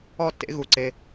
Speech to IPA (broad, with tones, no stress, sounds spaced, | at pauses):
ɔ˥˩ tː ḛ˨˥ ɣ u˨ ǀ e˨